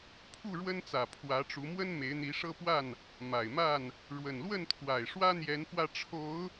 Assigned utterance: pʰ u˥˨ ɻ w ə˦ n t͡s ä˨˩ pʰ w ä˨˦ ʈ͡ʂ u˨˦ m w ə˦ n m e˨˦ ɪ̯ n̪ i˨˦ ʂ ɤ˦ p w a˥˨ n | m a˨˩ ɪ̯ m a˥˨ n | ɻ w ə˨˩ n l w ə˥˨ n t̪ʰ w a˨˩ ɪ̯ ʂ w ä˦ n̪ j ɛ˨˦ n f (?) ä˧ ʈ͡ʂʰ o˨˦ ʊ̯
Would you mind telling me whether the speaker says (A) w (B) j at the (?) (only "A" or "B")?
A